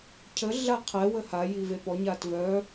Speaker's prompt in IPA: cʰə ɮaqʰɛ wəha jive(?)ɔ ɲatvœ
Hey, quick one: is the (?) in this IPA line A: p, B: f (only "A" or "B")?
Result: A